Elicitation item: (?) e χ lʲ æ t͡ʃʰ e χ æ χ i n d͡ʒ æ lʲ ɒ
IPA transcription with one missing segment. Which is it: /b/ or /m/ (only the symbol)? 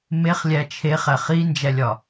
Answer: m